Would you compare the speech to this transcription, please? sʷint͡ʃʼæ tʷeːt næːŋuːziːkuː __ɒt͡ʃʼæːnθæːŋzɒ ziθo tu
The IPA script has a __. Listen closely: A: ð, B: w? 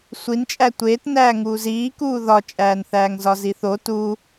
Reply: A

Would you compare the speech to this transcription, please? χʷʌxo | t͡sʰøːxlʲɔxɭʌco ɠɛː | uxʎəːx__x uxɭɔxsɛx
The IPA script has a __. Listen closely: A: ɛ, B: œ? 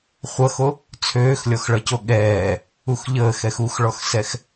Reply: A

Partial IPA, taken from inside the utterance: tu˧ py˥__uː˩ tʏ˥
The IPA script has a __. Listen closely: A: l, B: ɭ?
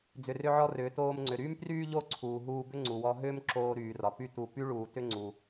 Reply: B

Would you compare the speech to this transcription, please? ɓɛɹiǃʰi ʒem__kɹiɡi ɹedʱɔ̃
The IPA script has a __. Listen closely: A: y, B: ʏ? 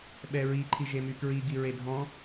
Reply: A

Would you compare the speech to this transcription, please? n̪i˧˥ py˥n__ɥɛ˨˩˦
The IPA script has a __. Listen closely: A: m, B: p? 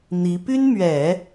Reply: A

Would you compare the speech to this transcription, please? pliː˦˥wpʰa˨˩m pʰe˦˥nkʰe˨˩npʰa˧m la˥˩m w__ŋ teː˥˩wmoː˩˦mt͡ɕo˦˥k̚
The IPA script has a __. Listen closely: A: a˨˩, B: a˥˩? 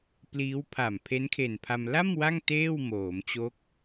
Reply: B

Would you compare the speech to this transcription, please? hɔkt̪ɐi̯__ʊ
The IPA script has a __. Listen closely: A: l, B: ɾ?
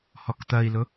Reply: A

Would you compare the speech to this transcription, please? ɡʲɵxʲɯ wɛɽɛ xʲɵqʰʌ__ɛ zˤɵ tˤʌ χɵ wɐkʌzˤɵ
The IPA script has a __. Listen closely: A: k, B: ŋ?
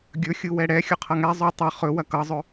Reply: B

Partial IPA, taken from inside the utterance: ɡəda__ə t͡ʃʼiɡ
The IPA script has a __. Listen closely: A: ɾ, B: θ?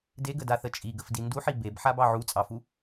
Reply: B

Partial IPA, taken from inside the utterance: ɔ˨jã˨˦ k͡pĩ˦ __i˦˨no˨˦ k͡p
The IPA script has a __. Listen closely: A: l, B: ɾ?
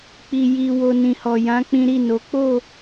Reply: B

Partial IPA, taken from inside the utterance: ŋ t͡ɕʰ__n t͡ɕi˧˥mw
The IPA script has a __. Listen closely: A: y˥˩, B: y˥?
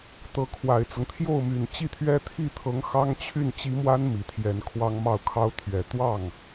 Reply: A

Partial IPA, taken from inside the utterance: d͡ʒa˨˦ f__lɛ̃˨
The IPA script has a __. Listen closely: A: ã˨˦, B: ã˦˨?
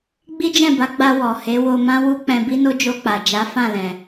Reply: B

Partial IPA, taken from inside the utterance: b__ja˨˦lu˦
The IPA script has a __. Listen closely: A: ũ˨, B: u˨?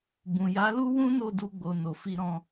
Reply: A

